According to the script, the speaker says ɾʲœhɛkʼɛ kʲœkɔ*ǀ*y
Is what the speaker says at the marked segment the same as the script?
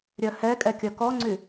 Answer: no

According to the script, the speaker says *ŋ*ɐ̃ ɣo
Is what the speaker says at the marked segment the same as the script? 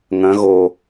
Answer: yes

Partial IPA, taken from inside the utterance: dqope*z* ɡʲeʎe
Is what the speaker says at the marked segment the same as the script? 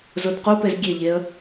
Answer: yes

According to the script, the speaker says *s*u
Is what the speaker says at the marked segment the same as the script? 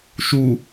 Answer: no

